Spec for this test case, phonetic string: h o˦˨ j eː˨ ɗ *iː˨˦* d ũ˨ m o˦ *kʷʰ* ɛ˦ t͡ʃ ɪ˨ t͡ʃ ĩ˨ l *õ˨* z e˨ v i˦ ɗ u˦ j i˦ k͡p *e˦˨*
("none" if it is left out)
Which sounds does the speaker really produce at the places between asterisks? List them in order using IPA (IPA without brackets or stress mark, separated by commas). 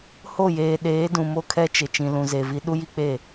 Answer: eː˨˦, kʰ, ũ˨, e˦˨